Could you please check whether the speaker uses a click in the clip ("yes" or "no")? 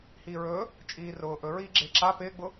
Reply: yes